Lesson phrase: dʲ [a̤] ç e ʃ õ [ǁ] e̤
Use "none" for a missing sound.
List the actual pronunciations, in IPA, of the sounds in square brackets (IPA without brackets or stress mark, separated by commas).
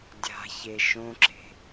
a̤, ǁ